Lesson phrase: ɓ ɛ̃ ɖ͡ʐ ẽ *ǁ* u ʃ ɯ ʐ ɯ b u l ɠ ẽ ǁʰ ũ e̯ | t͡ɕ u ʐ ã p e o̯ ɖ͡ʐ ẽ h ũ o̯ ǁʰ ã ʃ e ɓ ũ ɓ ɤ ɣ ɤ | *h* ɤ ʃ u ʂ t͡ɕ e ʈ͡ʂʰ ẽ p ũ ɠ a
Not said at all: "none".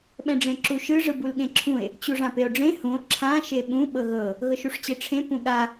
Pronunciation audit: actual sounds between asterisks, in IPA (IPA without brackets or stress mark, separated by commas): ǁ, ɣ